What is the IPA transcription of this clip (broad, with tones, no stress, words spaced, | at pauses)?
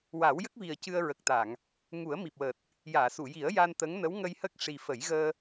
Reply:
wa˨˩˦wjə˦˥k̚vi˨˩ə̯ cɨ˧ə̯ɹə˨˩k̚t̪a˨˩˨ŋ | ŋu˨˩˦ə̯ mi˨˩p̚wəː˨˩t̚ | jaː˨˩˨su˨˩˨ji˨˩˦ə̯ ja˧nt̪ə˧˥ŋnə˧˥w ŋə˧jhə˦˥k̚ ʂi˨˩fə˨˩˦j ɣəː˧